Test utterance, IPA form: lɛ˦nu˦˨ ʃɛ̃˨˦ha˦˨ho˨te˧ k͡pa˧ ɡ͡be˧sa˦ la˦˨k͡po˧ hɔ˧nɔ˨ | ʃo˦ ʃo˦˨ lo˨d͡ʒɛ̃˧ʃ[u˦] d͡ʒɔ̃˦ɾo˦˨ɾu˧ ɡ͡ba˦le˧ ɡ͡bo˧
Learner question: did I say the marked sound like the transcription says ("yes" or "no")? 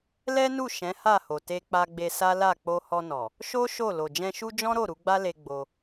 yes